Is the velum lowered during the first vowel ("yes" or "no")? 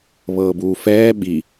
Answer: no